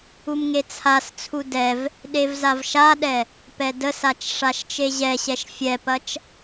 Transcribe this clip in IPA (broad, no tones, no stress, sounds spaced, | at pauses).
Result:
u m ŋ e t͡sʰ a s t͡sʰ u d ɛ v | ɗ e v z a v ʃ a ɗ ɛ | p ɛ d ə s a t͡ʃ ʂ a ʃ t͡ʃ e ʑ ɛ ɕ ɛ ʃ fʲ ɛ p ɐ t͡ʃ